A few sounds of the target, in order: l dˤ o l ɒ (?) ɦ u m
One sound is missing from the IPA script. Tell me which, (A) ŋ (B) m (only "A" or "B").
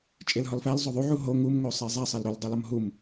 B